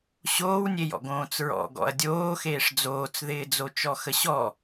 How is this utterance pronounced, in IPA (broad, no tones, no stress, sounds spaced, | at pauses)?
ɕ oː w nʲ e j ɔ̰ ɡ õː t͡s ɹ ɔ̰ ɡ ɔ̰ ɐ̯ dʲ oː x eː ʂ d͡z oː t͡s ð ɪː d͡z o t͡ʃ ɔ x ə ɕ ɔ